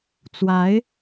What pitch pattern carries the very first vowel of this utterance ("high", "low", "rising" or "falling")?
rising